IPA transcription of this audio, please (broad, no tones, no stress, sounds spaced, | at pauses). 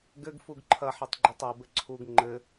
ɡ ɘ ɡ f u ɡ ǃʰ ɐ ħ i tˤ ɡ͡ǃ e tˤ o b ɘ ǀʰ u ɡ ŋ͡ǃ ɘ